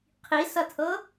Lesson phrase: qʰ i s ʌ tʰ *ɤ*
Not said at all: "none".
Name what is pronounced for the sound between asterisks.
ɤ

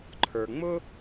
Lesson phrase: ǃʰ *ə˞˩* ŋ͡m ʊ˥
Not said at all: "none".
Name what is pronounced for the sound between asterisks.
ə˞˩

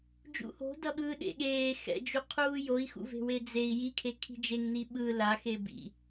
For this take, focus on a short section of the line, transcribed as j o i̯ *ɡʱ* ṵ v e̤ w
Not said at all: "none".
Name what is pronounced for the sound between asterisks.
x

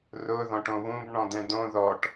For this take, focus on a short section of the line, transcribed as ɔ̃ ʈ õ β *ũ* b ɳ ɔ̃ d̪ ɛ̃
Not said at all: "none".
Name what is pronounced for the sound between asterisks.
ũ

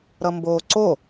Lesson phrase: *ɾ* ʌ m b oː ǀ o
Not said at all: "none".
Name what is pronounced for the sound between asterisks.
ɾ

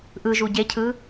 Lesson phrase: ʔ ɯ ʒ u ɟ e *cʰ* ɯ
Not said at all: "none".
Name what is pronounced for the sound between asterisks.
cʰ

